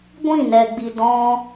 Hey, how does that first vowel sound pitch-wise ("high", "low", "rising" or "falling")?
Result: falling